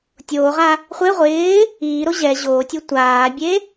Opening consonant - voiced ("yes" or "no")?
no